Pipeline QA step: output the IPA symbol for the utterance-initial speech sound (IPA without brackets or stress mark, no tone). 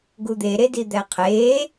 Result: ɡ